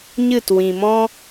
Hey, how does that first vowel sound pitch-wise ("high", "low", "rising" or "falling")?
falling